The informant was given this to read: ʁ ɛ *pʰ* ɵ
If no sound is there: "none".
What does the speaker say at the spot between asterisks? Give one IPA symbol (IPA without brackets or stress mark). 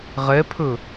pʰ